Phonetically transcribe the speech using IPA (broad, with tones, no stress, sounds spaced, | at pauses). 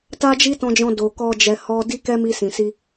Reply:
t a˦ d͡ʒ i˦ t ɔ̃˧ d͡ʒ ɔ̃˧ d o˨ k ɔ˧ d͡ʒ ɛ˨ h ɔ˧ d i˦ k ɛ˦ m i˧ s ĩ˨ s i˧